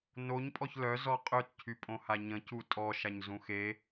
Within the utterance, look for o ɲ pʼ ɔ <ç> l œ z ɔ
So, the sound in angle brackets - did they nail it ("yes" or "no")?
yes